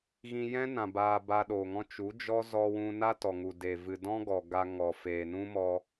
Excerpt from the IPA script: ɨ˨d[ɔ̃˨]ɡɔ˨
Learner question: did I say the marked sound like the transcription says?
no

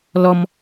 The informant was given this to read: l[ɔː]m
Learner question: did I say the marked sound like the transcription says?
no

